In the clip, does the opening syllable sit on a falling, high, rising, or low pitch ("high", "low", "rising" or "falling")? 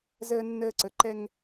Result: high